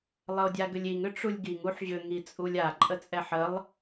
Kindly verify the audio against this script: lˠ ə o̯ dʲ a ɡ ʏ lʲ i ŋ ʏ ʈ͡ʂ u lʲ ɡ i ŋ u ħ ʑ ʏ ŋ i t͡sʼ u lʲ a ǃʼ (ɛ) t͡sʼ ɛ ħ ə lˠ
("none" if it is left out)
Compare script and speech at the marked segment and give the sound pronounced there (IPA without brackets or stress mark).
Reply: ə